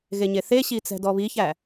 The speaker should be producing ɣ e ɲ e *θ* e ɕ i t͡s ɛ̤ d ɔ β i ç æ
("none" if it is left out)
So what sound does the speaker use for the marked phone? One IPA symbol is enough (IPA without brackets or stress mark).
θ